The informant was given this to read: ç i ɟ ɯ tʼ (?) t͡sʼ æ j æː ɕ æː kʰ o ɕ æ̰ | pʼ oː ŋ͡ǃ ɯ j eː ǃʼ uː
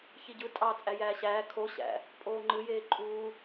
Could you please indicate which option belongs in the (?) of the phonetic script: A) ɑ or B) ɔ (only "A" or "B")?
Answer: A